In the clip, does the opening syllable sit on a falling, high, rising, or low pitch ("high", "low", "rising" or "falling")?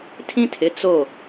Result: high